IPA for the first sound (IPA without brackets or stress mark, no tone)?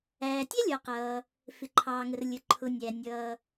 æː